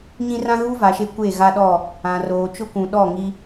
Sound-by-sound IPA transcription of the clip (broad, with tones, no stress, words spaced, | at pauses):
ɲĩ˦ rã˦ɣu˦ va˨ʃe˦kʷe˦˨ ɣa˦ɗɔ˦˨ | ã˨roː˨t͡ʃʊ˦ kʷũ˨ɗɔ˦˨ŋi˦